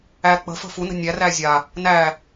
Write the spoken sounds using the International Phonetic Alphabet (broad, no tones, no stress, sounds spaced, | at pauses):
æ k͡p ə̤ f ə̤ f u n ə̤ nʲ æ r æ zʲ a | n æ